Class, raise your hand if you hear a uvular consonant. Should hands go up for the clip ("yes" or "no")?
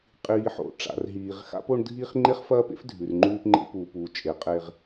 yes